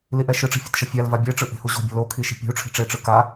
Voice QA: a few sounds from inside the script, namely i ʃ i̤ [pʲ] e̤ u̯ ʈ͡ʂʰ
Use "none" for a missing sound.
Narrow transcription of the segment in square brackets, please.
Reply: pʲ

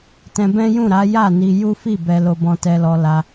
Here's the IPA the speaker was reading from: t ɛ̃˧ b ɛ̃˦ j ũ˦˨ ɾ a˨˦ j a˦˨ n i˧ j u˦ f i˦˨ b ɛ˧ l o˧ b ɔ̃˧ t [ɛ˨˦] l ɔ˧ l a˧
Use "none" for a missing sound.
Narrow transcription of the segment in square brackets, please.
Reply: ɛ˧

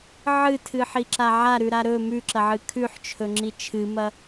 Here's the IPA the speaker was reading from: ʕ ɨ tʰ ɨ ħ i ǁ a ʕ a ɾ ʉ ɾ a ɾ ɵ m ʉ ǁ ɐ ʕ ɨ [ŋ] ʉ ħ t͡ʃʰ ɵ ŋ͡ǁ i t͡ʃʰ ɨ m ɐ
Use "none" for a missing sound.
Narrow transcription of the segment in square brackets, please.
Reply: kʰ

